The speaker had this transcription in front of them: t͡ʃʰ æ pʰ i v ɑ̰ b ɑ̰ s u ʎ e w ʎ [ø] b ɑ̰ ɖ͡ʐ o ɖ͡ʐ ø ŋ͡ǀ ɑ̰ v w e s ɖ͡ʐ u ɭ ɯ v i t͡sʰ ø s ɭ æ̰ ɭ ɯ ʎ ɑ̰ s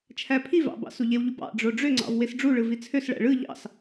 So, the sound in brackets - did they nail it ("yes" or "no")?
no